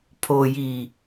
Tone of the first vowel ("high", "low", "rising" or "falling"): low